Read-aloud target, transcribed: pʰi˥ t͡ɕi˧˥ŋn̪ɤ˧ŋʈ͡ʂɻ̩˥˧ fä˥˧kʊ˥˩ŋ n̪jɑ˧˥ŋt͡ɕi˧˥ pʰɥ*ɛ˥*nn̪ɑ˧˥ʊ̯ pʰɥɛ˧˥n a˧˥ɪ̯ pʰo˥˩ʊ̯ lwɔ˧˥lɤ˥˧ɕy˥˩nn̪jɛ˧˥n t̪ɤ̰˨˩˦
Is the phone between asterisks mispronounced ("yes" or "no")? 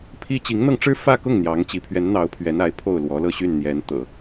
yes